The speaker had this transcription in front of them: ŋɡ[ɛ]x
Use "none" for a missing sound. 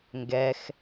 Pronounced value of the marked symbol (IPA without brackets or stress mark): ɛ